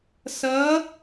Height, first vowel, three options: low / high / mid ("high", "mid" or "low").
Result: mid